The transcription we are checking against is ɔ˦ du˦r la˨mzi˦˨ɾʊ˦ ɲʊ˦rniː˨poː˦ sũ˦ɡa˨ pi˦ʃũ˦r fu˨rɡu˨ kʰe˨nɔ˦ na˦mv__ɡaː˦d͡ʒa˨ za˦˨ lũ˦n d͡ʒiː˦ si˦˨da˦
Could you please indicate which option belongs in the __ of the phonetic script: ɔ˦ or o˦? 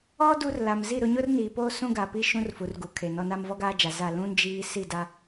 ɔ˦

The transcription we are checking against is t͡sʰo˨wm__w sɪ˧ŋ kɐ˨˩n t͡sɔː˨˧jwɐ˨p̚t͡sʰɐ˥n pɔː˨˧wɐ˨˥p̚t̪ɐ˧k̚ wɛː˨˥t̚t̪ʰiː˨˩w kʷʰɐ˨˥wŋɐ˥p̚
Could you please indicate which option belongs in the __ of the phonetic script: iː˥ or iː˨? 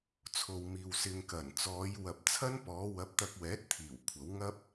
iː˨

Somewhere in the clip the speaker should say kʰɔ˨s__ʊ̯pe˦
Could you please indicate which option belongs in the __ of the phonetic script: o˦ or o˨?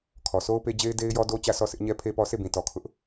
o˦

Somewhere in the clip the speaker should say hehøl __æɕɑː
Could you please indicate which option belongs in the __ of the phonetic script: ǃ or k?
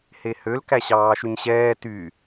k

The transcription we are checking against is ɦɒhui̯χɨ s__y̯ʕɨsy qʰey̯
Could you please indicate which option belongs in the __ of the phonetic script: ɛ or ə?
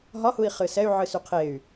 ɛ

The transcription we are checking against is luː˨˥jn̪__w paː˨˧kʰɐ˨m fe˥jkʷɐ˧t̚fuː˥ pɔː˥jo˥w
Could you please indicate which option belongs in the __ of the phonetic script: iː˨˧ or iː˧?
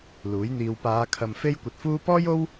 iː˧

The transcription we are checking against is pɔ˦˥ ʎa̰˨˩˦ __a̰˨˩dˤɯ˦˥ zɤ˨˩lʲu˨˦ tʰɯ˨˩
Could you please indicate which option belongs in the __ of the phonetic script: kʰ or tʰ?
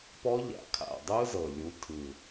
kʰ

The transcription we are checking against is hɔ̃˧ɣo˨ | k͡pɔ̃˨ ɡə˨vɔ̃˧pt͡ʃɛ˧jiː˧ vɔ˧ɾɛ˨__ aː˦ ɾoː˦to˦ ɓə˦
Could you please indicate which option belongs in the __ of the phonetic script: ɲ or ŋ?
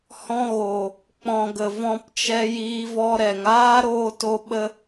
ŋ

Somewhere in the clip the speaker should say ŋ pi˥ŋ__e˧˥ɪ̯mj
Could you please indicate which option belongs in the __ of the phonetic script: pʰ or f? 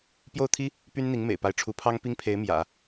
pʰ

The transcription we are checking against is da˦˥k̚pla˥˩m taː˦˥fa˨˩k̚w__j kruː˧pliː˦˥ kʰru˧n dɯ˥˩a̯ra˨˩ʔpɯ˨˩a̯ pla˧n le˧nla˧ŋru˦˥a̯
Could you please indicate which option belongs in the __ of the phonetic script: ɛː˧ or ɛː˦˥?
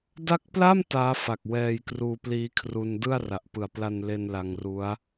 ɛː˧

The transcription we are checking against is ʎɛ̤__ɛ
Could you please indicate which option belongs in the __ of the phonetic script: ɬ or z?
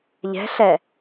ɬ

